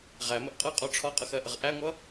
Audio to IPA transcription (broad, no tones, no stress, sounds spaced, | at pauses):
ʁ æ m ə ʔ qʼ ʌ qʼ ɒ ʈ͡ʂʰ ɒ qʼ ʌ x ɜ ʔ ə ʁ ʔ æ ŋʷ ʌ